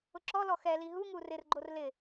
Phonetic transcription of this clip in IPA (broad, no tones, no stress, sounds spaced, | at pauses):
ʊ ǁ ɔ l ɔ x ɛ l i ɦ u ŋ u r ɪ r ɡ͡ǃ o r l ɪ